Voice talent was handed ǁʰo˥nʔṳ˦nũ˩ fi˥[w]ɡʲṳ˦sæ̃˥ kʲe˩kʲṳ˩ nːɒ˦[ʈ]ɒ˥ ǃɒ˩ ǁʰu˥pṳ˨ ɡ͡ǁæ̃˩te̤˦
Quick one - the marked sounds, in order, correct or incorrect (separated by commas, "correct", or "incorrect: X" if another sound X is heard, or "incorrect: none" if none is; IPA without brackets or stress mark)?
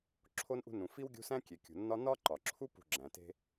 correct, incorrect: n